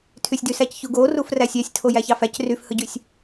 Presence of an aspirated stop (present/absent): present